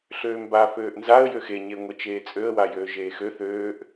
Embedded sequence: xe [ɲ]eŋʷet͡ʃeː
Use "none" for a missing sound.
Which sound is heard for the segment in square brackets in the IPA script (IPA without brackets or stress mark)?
ɲ